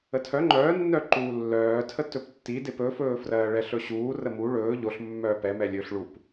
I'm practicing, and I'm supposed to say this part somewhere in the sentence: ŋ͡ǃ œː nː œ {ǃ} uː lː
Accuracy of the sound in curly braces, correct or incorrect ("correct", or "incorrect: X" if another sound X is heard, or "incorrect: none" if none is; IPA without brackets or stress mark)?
correct